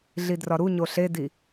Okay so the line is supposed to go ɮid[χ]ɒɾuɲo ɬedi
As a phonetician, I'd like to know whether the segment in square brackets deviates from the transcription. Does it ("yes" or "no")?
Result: yes